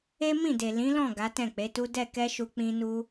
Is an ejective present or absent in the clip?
absent